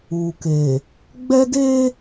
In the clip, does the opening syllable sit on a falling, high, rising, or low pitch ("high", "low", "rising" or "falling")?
low